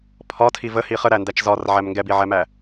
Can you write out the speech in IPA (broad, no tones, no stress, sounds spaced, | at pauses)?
pʰ ɒ tʰ i v ə h i χ ə ɾ æ n d æ t͡ʃ z ɒ r ʕ æ m ŋ ɡ ɛ b i ʕ æ m æ